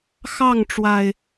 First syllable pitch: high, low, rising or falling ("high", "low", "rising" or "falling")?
falling